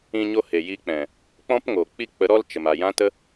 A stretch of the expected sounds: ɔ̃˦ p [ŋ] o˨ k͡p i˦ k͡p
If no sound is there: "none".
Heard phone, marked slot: ŋ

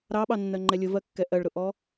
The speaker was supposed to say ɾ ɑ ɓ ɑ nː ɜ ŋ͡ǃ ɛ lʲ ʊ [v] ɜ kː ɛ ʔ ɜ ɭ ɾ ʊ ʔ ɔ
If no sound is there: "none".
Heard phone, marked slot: v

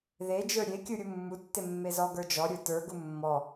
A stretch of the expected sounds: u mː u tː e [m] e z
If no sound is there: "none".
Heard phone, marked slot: mː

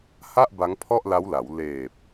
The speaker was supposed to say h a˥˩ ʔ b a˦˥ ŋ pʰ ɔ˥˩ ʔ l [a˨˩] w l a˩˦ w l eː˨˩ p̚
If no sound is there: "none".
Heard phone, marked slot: a˦˥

